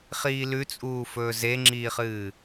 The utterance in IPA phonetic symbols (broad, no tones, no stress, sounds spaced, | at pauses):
χ iː l ʉ t͡sʼ uː f ɵː z e ŋ͡ǁ iː χ ɨː